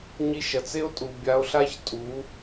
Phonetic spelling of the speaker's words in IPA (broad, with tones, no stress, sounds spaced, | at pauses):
ɲ i˧ ʃ ɐ˨ t͡s e˦ o̯ tʼ u˨ bʲ a˧ o̯ ɬ a˦ ç tʼ u˨˦